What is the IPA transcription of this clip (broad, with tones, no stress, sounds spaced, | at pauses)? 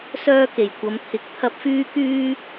s œː˥ k e˨˩ j kʷ ɐ˨˧ m t̪ʰ ɪ˨˥ k̚ t̪ʰ ɐ˥ p̚ f yː˥ k yː˥